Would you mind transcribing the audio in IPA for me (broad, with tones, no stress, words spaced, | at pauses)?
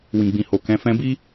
wĩ˨ɡ͡bĩ˨ho˨ kɛ̃˨˦fɛ̃˦ bi˦